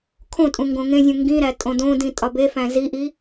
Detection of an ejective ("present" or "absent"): present